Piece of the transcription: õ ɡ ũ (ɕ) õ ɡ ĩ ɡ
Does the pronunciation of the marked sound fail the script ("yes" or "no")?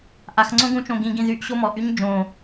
yes